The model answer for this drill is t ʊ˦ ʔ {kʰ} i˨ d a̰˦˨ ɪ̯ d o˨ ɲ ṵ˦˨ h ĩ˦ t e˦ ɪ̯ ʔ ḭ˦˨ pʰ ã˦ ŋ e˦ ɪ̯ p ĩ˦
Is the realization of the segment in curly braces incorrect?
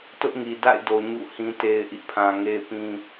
yes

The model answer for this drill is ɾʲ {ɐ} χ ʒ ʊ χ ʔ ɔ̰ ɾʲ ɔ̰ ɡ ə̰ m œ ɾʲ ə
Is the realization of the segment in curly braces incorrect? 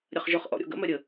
no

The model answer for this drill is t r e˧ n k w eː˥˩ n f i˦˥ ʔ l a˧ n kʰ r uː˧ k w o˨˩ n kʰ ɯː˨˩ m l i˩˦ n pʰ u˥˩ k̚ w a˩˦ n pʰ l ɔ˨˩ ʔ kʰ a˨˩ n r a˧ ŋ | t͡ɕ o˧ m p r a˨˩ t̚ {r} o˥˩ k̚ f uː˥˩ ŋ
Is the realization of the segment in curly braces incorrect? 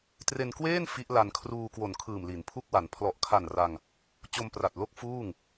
yes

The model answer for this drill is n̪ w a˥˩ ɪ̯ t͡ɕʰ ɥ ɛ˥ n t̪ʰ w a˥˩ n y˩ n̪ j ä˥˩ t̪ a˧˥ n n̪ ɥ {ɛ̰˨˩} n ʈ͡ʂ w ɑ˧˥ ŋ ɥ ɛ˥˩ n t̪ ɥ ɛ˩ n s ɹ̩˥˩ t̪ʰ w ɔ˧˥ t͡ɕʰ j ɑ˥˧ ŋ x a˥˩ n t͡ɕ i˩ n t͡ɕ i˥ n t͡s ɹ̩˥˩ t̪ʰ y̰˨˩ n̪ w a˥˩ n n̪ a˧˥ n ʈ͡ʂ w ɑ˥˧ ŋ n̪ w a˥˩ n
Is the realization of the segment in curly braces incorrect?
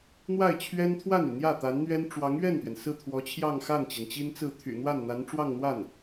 yes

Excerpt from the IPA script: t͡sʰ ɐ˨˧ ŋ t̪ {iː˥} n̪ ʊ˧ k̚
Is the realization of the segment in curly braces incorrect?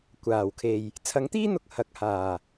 no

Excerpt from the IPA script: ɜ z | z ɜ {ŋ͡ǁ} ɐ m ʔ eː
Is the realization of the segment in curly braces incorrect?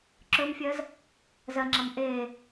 no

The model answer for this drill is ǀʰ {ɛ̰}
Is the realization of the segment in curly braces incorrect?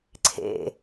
yes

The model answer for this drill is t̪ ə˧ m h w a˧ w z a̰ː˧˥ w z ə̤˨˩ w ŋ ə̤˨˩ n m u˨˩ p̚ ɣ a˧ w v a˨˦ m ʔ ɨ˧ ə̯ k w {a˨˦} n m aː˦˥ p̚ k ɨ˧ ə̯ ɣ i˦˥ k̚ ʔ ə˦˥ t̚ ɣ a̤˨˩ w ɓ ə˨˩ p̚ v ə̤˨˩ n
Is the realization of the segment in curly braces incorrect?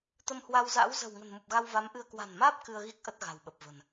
yes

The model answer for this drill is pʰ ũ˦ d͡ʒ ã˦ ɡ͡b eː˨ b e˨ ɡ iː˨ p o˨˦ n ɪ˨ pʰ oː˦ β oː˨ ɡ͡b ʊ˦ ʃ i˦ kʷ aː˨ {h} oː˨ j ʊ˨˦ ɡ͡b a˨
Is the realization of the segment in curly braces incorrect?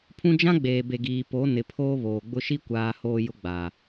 no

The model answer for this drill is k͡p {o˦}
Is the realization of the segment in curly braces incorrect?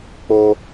no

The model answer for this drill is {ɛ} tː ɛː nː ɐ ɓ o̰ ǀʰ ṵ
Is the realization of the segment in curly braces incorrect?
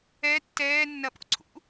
no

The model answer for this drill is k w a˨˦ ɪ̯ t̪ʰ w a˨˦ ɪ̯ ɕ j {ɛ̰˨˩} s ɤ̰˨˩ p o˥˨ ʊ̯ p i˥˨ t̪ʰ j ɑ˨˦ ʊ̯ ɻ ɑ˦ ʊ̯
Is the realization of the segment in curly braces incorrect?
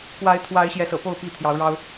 yes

